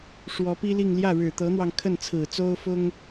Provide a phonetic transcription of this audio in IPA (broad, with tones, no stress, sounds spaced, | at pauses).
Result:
ʂ w ɔ˧˥ p i˥ l i˥˧ ŋ l j ä˥˩ ɻ ɻ̩˨˩ t̪ ɤ˧˥ n̪ w ɑ˧ ŋ kʰ ə˥˩ n t͡sʰ ɹ̩˨˩ t͡s o˥ ʊ̯ f ʊ˥ ŋ